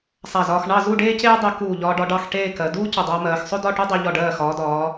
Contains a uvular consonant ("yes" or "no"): no